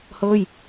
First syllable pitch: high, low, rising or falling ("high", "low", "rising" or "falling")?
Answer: falling